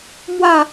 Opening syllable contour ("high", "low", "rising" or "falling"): falling